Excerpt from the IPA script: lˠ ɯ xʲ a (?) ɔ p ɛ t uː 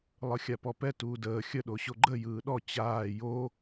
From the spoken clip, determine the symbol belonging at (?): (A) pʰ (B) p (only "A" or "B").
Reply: B